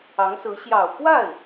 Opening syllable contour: rising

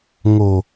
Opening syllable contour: low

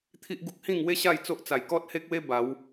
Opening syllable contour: high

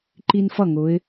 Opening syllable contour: high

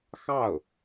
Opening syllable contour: falling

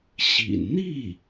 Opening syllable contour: low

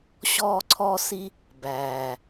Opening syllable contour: high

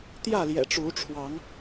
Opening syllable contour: falling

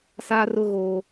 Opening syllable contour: high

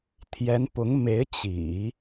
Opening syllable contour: rising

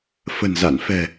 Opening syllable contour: low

